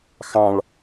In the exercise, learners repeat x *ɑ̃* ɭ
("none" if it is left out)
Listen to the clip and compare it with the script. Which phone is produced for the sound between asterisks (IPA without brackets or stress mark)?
ɑ̃